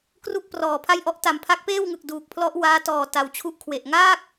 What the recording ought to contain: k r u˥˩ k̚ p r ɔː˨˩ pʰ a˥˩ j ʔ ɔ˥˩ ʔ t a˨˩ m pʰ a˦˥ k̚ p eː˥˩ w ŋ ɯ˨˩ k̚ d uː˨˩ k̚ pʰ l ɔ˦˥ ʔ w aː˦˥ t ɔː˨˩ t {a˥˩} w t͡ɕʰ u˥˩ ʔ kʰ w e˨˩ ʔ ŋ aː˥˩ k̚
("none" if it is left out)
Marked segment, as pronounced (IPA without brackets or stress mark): a˨˩